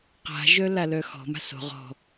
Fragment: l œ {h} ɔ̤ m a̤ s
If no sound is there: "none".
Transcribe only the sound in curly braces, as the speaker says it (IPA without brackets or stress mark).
x